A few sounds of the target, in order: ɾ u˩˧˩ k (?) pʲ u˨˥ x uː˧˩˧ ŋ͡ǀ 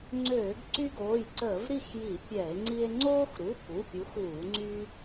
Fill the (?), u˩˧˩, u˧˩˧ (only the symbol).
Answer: u˩˧˩